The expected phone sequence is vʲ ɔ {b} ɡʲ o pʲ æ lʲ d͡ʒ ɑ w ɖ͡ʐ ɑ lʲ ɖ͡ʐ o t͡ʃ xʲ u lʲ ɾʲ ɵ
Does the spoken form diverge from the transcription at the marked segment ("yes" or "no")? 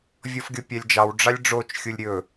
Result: yes